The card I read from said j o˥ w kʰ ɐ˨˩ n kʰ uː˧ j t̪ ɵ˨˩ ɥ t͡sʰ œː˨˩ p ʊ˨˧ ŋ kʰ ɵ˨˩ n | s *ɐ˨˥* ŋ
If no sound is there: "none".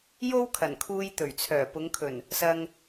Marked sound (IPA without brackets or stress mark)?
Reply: ɐ˧